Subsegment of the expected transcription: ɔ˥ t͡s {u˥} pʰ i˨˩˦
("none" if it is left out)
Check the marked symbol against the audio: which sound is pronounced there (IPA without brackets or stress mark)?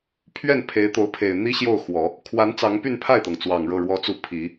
u˥˩